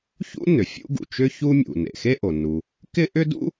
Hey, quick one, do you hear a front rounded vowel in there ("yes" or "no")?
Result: yes